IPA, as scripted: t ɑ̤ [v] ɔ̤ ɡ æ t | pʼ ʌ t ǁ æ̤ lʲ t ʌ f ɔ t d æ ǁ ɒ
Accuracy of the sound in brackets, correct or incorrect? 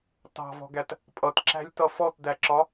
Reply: correct